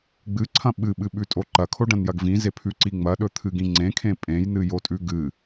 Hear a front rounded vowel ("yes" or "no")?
no